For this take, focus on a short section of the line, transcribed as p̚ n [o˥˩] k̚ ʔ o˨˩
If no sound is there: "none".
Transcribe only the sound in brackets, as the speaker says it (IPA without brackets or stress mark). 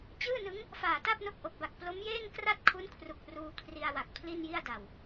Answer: o˦˥